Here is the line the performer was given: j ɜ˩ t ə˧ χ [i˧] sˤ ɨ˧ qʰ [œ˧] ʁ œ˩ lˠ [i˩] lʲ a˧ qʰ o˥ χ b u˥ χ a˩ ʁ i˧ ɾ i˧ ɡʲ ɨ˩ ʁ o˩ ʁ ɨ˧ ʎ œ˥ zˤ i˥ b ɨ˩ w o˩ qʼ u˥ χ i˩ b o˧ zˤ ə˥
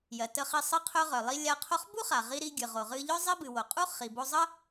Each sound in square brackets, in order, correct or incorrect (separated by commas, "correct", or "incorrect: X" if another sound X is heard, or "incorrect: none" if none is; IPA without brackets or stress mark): correct, correct, incorrect: i˧